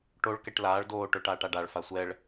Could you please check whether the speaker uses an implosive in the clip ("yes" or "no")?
no